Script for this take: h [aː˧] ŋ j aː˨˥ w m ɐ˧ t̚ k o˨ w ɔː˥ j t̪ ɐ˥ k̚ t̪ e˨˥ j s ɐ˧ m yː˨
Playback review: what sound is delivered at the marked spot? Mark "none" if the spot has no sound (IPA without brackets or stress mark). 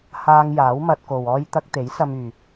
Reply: aː˧